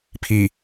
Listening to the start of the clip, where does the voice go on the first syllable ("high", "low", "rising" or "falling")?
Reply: low